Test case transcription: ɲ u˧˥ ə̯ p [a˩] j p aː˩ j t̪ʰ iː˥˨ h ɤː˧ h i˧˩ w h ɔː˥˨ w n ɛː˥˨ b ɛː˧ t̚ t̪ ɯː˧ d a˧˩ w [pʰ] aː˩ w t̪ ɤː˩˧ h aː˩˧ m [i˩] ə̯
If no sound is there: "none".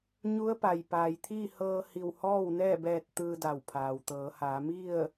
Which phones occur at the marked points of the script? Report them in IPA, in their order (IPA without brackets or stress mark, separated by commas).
a˩, pʰ, i˥˨